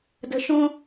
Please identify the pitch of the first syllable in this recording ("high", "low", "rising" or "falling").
low